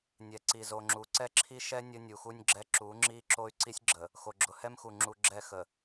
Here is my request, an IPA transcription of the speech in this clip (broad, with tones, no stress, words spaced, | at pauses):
nʲɛ˨ǀi˨zo˨ŋ͡ǁu˨˦ ǀɛ˦ǁʰi˦ʃɛ˦ nʲə˦nʲu˨xu˦nʲɡ͡ǁɛ˦ ǁu˨˦ ŋ͡ǁi˦ ǁo˦y̯ǀi˦sʲɡ͡ǁə˨ | xo˨ɡ͡ǁʊ˨hɛ˦mxu˨ ŋ͡ǁu˨ ɡ͡ǁɛ˦˨xə˨